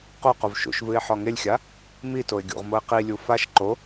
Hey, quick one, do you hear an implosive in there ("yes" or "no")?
no